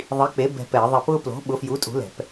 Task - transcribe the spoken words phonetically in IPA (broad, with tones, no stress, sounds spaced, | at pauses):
ðˤ i˨˥ k͡p e˨˥ b ɛ̤˦˨ p ɛ˧˩˧ ɪ̯ ðˤ e˦˨ p ʊː˦ p l o̤˨˥ ɓ ʊ˨˥ f j u˨˥ tʼ ṳ˨˥ l ɛ̤˧˩˧ p